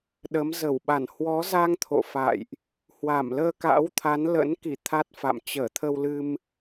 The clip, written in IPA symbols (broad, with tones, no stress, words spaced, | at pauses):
ɗə˨˦m zə˧˩wɓa˧˩n hwɔ˨˦za˧ŋ t̪ʰo̰˧˨fa̰˧˨jʔ | hwa˧˩mləː˧ka̰˧˥wt̪ʰa˨˦n lə̰˧˥n ki˧˩ t̪ʰa˦˥t̚fa̰˧˨m t͡ɕəː˧˩t̪ʰə˧wlɨ˧m